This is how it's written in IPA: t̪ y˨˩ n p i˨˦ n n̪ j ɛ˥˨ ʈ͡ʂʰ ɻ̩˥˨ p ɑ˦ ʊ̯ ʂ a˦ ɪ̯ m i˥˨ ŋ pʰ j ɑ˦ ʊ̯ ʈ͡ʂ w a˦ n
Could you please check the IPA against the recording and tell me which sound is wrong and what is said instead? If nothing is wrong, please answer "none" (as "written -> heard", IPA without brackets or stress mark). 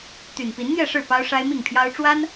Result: ʈ͡ʂʰ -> ʂ